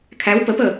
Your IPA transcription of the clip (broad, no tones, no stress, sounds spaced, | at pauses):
kʰ æ w p ə p əː